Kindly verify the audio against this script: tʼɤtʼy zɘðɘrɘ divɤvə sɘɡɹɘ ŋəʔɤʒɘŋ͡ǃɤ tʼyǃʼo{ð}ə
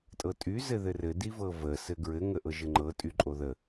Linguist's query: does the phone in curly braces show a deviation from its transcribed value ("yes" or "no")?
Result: no